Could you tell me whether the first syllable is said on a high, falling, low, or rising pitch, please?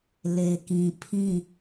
low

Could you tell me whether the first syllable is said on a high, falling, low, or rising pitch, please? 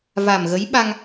low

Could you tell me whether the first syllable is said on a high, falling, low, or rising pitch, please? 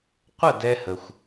falling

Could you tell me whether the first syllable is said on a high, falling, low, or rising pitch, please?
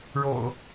low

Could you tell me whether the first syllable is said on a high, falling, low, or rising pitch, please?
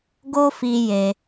high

